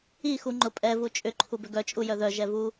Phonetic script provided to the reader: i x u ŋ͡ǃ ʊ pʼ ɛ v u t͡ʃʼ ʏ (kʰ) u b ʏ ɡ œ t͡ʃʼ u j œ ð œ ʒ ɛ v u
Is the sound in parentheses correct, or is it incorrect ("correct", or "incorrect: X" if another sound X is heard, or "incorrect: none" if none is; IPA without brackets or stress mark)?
incorrect: ǃʰ